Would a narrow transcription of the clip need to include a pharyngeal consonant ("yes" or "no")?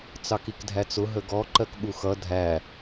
no